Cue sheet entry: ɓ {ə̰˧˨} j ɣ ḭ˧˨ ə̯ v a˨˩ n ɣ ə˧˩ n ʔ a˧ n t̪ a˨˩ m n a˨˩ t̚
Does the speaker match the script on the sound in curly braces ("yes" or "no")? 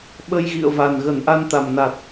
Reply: no